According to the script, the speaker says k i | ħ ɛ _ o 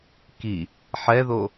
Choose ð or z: ð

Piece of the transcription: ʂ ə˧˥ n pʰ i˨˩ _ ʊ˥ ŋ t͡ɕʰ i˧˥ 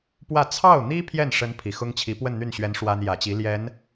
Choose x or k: x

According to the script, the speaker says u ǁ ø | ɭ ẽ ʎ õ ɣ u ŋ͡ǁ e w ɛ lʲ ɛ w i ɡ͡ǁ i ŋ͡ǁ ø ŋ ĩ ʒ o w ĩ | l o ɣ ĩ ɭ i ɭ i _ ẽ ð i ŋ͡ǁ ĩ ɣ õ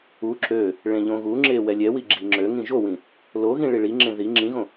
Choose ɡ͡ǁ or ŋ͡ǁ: ŋ͡ǁ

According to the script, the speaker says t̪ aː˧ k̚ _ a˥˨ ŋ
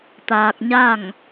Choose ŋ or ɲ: ɲ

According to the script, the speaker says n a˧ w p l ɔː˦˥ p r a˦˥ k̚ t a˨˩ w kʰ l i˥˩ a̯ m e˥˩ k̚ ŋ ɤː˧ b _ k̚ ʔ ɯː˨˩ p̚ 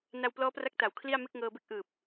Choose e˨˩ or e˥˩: e˥˩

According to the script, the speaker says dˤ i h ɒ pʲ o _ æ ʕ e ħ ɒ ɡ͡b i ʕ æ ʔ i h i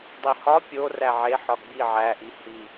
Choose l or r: r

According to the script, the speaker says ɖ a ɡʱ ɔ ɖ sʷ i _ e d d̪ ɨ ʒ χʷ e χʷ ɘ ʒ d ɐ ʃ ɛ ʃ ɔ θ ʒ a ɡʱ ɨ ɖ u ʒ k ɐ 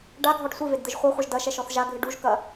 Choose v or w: v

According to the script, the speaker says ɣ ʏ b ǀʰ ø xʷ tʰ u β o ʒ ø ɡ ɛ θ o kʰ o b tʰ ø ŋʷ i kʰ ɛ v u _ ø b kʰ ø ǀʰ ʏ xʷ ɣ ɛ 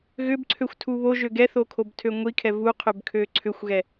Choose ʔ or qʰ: qʰ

